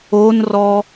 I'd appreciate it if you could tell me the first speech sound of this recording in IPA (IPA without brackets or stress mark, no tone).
o